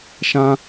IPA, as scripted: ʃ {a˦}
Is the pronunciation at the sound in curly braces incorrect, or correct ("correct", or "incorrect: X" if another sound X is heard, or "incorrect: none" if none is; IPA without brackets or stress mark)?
incorrect: ã˦